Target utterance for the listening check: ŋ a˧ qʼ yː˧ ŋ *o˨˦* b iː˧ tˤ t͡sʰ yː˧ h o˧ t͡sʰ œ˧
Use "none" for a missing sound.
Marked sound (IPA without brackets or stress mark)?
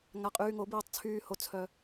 o˨˦